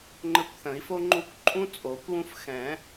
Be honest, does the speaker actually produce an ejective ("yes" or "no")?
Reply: yes